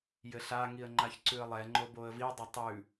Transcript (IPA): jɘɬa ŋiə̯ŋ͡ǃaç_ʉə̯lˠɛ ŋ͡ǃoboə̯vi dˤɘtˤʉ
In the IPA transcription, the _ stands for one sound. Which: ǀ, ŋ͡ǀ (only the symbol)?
ǀ